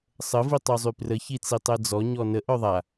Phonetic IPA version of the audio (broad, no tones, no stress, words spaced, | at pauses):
sˤə vitˤozˤyprə çit͡sitˤɛd͡zɔ ɲɔnə ʔœðˤa